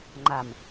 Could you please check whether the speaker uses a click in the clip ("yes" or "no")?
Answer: yes